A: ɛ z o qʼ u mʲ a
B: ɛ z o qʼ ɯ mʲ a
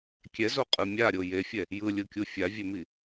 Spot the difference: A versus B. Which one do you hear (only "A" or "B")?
B